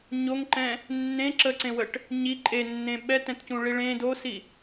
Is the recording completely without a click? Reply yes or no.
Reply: no